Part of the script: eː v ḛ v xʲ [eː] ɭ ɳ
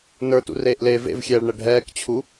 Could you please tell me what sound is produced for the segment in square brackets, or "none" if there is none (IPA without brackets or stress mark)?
ɛː